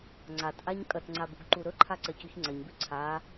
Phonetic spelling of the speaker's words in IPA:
ŋ͡ǀ a t ʔ a ɲ kʼ ɐ t ŋ͡ǀ a b ṳ ɡ ǃ u ɾ ɵ ǃʰ a ǀ ɐ c ʉ ç ŋ͡ǀ ɐ ɲ b ʉ ǀʰ a

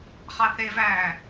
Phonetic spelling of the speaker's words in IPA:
χ ɑ θ e v æː

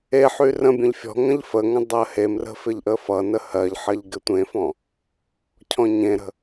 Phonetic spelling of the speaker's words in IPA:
e ħ y r ə̃ bʲ ə̃ ʎ fʲ ɔ̤ ŋ ə̃ ʎ f ə ŋ ə̃ dˤ ɜ h e m r ə̤ f ɪ ʎ ʔ ə f ʌ n ə h ɜ ʎ ħ ɜ ʎ ɡ ɪ tʷ ẽ f ɔ̃ | cʰ ɔ̃ ɲ ẽ ɾ ə̤

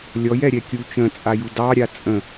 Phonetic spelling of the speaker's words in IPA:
lʲ ɔ j ɛ ɾʲ ɛ kʲ u t͡ʃ ə̃ t͡sʼ a j u d ɑ ɾʲ a t͡sʼ ə̃

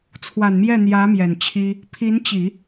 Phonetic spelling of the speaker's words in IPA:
t͡sʰ w a˨˩ n m j ɛ˥˩ n̪ j ä˧˥ m j ɛ˨˩ n t͡ɕʰ i˥ | pʰ i˧˥ n t͡ɕ i˨˩˦

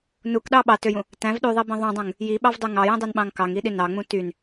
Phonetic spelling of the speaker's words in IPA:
n u k ɗ ɑ ɓ ɑ t ø j ũ | t æ̃ v ɗ y ðˤ i b ĩ ðˤ ũ dˤ ũ ŋ | j i ɓ ɑ v dˤ y ŋ ɑ j ĩ dˤ ø n ɓ ɑ̃ ŋ k ɑ ŋ i ɗ i n ɑ ŋ͡m ũ t y n

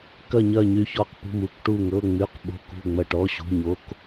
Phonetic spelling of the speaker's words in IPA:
k ɐ˦˨ ɲ ɐ˦˨ ɲ y˦˨ ç ɔ˦˨ q p ṳ˦˨ m u˧˥˧ k ʈ u˦˨ ŋ ɤ˧˥˧ ŋ͡m y˧˥˧ q ɓ o̤˧˥˧ k ṳ˦˨ ŋ͡m ɐ˦˨ ʈ ɔ˧˥˧ ɕ ṳ˧˥˧ ɲ o˧˥˧ k

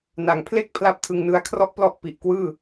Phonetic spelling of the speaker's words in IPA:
n a˨˩ ŋ pʰ l e˥˩ k̚ pʰ l a˥˩ p̚ tʰ ɯ˧ ŋ n ɯ˦˥ a̯ kʰ r ɔ˥˩ ʔ p l ɔ˥˩ ʔ p i˨˩ ʔ k w ɯː˥˩

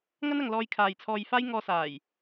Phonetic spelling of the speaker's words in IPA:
ŋ ɐ˥ n ɐ˨ ŋ l ɔː˧ j kʰ aː˨ j t͡sʰ ɔː˧ j f aː˥ j ŋ ɔː˧ s aː˨˩ j

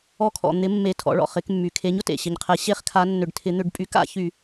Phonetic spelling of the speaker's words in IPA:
ɔ˧˩˧ kʰ ɔ̰˩ n̪ ɪ˩˧ mː e˩ tʰ ɔ̰˩˧ ɭ ɔ̰˩ χ ɪ˩˧ k mː y˩ kʰ e˩˥ ɲ ʊ˩ t ḛ˩ ɕ ɪ˩ ɲ qʰ ɛ˩˧ ɕ e˧˩˧ χ kʰ a˩˧ nː ʏ˩ ɖ tʰ ɪ˩˧ n̪ ʏ˧˩˧ ɖ pʼ y˩˥ k a̰˩˧ ç y˧˩˧

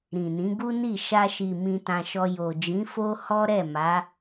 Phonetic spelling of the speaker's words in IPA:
ɾ ĩ˨ n ĩ˨˦ ɡ u˦ n i˦˨ ʃ a˧ ʃ i˨ m ĩ˧ t ã˧ ʃ ɔ˧ j o˨ d͡ʒ ĩ˨˦ f o˦ h ɔ˦ ɾ ɛ˦˨ m a˨˦

